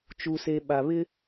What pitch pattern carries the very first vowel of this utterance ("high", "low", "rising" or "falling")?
low